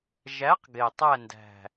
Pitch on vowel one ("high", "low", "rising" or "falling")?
rising